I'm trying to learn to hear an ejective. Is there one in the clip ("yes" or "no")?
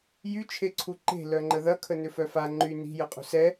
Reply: yes